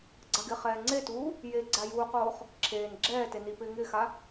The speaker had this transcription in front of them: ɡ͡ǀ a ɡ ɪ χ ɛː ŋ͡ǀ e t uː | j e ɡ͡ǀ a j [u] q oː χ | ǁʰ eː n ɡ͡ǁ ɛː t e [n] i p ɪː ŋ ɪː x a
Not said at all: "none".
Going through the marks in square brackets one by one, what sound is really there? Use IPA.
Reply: uː, n

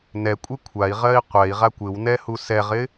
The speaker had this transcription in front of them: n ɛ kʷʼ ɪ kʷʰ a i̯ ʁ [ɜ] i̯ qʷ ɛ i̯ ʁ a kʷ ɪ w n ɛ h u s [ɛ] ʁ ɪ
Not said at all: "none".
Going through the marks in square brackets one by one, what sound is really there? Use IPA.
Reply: ɜ, ɛ

